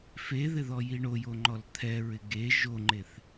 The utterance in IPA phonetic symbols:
f e ð ɪ ð ɔ j i ɳ o j o ŋ͡ǃ ɔ l t̪ʰ ɛ ɹ ɪ ɡ e ʒ o ŋ͡ǃ e θ

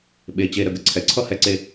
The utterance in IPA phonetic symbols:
ɓ e˩˧˩ t͡ɕ e˩˧˩ ɾ ə˩˧˩ ɡ ə˩ ǀʰ ɛ˩ ǀʰ ʌ˥˩ h ɛ˥˩ ǀ e˦

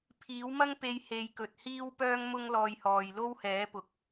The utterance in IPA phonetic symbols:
pʰ iː˨˥ w m ɐ˥ ŋ p e˧ j h e˧ j k ɵ˨ t̚ h iː˥ w p œː˥ ŋ m ʊ˥ ŋ l ɔː˧ j h ɔː˨ j l o˥ w h ɛː˨˥ p ʊ˨ k̚

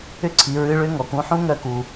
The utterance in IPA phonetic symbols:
ʏ˥ ǀʰ i˩˧ ɹ ɨ˧˥ ɭ ʏ˧˥ ŋ ɔ˩ k ũ˧˥ ħ ũ˥ ŋ œ˧˥ k u˩

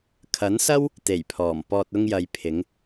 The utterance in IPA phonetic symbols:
kʰ ɐ˨˥ n s ɐ˥ w | t̪ e˨˩ j pʰ ɔː˨˩ m p ɔː˨ t̚ ʊ˧ ŋ j ɐ˨ j pʰ ɪ˨˧ ŋ

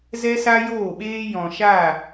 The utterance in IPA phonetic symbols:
z ɛ˦ s a˦ j oː˦˨ ɓ eː˦ j ɔ̃˨ ʃ a˦˨

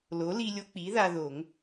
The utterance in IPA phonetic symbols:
l o˩˥ l i˧ lʲ o˧ k͡p i˩˥ ð a˧ ð o˨˩˦ ŋ

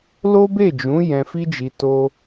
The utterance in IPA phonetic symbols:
l o˦ b e˦˨ d͡ʒ ũ˨˦ j ɛ̃˧ f i˦ d͡ʒ i˧ t o˦

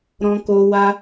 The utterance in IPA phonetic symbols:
ɾ ɔ̃˧ k o˧ w a˦

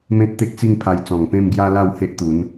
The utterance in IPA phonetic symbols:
m ẽ˦ t̚ t̪ e˦ k̚ t͡s i˥˧ ŋ pʰ a˧ j t͡s ɔ̃˨˩ ŋ p ẽ˥˧ m ɡ j a˦ l a˥˧ w h e˦ ʔ t̪ u˨˦ n

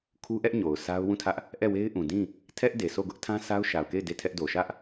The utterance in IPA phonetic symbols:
kʰ u˦ ʔ ɛ˦ ʔ ɲ o˨ ʊ̯ sʰ a˦ ʊ̯ w ũ˦˨ tʰ ä˦ ʔ | ʔ ɛ˦˨ w e˦ ɪ̯ ʔ ũ˨ d ĩ˦˨ | tʰ ɛ˦ ʔ d e˨ s o˦˨ ɡ ʊ˦ ʔ tʰ ã˦ sʰ a˦ ʊ̯ ʃ a˨ ʊ̯ k e˦˨ ɪ̯ d e˦˨ tʰ ɛ˦ ʔ d o˨ ʃ ä˦ ʔ

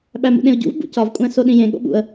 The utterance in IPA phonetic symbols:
ɓ æ m ṵ ɗ ẽ ʊ̯ ɟ ṵ v b ṵ c ɒ v kʷʼ æ̃ s o ɗ ĩ j ẽ ɠ o̰ ɓ ṵ ə̯

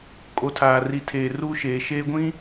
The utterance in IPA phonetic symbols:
kʼ o˨ tʰ aː˨ r i˨ tʰ eː˨ r u˦ ʃ eː˨ ʃ eː˦ ɡʷ ĩ˦

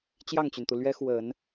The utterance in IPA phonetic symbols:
t͡ɕ j ɑ˥˩ ŋ t͡ɕ y˩ n t̪ u˩ l ɥ ɛ˥ x w ə˨˩˦ n

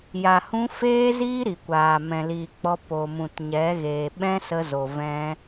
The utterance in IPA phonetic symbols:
j a˨ h ũ˧ f eː˦ z iː˦ ɾ i˨ kʷ aː˨ m ɛ̃˨ l iː˨ k͡p ɔ˧ p o˨ m ũ˨ t ɲ ɛ˨˦ ɣ eː˨ ɓ ɛ̃˦ s ə˧ z o˨ v ɛ̃˦

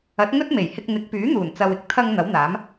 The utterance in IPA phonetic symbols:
ɐ˨˥ t̚ ŋ ɵ˥ t̚ m e˨˩ j h ɪ˧ k̚ n̪ ɪ˨˥ k̚ p yː˨˥ n̪ uː˨˩ n t͡s ɐ˨ w ɪ˥ k̚ t̪ʰ ɐ˧ ŋ n̪ ɐ˨˥ w n̪ aː˨˥ m

